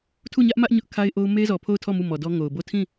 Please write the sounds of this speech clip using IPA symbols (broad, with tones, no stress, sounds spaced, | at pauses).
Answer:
tʰ u˦˨ ɲ ä˦ ʔ m ä˦ ʔ ɲ ʊ˦ ʔ kʰ a˦ ɪ̯ ʔ o˦ ʊ̯ m e˦ z ɔ˨ pʰ o˦˨ ʊ̯ tʰ ɔ˦˨ m u˦˨ m ɔ˨ d ɔ˦ ŋ o˨ ʊ̯ b o˦˨ tʰ ĩ˦˨